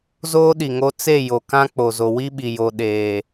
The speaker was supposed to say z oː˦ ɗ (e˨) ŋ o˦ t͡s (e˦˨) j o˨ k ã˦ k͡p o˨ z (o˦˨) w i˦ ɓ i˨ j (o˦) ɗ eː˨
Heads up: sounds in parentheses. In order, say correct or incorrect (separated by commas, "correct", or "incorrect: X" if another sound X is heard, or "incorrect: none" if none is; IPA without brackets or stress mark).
incorrect: i˨, correct, incorrect: o˨, incorrect: o˨